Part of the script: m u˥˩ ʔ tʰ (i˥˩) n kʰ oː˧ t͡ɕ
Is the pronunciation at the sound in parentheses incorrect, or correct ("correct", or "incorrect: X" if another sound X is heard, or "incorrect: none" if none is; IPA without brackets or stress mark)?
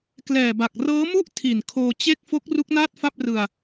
incorrect: i˨˩